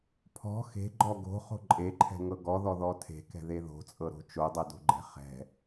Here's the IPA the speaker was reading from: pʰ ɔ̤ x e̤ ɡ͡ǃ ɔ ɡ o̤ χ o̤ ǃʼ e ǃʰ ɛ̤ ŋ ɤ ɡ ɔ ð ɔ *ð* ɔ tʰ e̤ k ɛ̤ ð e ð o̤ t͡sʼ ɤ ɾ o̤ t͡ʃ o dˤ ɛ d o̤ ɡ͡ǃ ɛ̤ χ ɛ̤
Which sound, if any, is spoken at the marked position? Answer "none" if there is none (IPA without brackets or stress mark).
ð